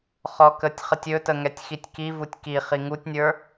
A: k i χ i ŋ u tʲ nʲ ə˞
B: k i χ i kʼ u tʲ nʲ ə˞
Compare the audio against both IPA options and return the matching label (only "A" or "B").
A